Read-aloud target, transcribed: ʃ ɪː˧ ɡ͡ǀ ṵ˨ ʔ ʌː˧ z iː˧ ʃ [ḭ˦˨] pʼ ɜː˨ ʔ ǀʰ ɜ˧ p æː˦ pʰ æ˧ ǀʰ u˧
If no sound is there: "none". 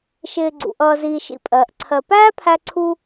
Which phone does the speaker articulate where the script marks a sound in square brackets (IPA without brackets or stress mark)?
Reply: ḭ˧